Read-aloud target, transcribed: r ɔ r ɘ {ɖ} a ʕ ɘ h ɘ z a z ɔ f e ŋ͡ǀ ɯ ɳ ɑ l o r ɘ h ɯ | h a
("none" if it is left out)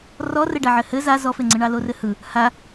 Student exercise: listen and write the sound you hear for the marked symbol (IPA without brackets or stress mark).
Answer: ɖ